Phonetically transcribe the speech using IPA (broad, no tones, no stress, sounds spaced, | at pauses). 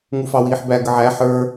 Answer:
ŋ u f ɑ w iː ħ b æ ɡ ə ʕ æ ħ ə˞